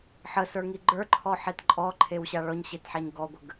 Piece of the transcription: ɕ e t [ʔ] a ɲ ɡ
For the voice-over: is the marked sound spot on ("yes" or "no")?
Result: no